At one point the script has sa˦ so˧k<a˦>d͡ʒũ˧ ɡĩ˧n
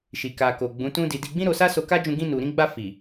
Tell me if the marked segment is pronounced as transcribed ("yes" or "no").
yes